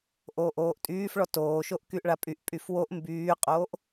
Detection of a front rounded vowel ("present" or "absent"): present